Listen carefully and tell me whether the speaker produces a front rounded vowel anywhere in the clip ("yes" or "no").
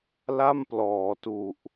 no